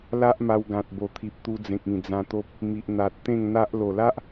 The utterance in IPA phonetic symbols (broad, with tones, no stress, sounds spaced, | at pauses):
l a˦ ʔ m a˧ w ɡ ã˨ t̚ b o˨˩ t̪ʰ i˨ p̚ t̪ u˧ d͡z ẽ˨ k̚ ĩ˨˩ d͡z ã˧ t̪ o˦ p̚ | m i˨ ʔ n̪ a˨ t̚ t̪ ẽ˥˧ ŋ n̪ a˦ ʔ l o˨˩ l a˦ ʔ